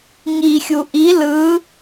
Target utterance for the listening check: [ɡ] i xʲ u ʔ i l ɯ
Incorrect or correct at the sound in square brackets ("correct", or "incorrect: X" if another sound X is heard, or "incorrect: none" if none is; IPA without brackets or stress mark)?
incorrect: ŋ